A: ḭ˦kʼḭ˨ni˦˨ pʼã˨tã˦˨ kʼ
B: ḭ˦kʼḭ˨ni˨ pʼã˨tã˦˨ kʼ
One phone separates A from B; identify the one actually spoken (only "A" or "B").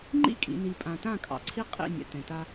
B